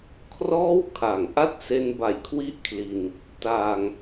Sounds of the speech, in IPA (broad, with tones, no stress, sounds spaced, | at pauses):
kʰ r ɔː˥˩ w kʰ a˨˩ ŋ ʔ a˥˩ t̚ s e˧ n b a˨˩ j kʰ w i˦˥ ʔ kʰ l i˧ n | t aː˧ ŋ